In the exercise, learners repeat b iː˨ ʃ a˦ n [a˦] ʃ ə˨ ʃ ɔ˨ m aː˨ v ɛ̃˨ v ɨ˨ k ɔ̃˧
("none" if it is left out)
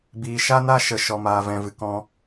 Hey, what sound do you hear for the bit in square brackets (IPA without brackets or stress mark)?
a˦